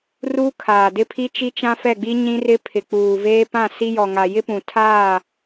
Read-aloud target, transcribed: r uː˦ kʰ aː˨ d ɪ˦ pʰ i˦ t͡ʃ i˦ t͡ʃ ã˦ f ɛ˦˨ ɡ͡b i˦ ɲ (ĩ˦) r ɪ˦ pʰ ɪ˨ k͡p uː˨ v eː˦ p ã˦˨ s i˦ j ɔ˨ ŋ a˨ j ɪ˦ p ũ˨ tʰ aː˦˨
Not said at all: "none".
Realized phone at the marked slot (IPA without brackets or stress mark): ĩ˦